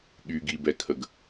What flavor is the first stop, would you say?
implosive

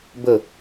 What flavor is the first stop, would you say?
plain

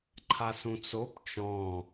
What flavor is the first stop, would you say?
click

